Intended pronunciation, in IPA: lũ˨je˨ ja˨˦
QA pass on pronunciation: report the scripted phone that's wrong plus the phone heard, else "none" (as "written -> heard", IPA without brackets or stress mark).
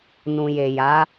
l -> n